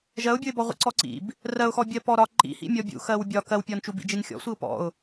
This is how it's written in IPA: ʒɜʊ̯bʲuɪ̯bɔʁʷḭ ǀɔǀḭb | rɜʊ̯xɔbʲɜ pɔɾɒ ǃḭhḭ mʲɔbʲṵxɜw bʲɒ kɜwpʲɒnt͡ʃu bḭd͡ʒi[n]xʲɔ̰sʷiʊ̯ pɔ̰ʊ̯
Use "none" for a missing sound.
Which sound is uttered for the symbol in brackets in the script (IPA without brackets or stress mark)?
n